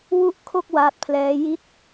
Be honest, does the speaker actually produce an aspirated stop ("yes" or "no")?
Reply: yes